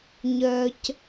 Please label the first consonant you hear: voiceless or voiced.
voiced